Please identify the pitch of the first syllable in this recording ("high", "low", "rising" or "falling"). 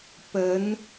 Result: rising